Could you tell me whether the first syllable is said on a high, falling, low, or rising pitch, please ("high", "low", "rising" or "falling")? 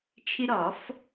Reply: high